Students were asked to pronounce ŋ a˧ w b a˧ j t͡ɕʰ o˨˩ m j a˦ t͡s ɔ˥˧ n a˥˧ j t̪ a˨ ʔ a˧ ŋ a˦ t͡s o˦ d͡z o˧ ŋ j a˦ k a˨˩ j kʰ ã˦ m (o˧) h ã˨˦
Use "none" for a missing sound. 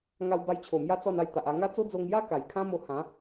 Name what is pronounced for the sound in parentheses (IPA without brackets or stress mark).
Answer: o˧